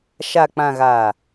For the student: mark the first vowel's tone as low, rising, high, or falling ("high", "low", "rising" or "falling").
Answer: low